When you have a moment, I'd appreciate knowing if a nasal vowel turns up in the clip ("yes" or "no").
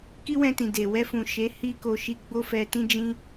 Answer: yes